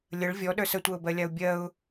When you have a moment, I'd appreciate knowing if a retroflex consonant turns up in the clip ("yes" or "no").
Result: yes